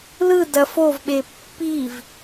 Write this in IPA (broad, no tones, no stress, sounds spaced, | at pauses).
l ɯ d ɐ f o v ɓ e pː i v